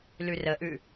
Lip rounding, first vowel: rounded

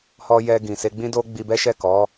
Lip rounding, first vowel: rounded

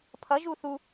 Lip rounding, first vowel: unrounded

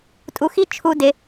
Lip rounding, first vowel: rounded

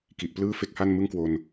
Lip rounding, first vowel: unrounded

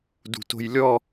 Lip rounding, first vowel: rounded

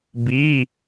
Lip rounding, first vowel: unrounded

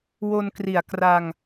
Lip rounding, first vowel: rounded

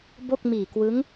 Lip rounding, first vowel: rounded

